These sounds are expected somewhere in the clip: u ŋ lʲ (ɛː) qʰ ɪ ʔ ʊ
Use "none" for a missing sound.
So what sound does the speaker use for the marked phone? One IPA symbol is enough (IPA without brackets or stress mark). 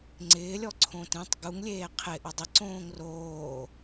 eː